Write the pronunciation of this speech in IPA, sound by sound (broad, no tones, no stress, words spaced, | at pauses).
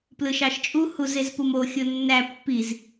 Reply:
plɯʃɑʃt͡ʃʼu huzezpumo xʲonːæ pːiz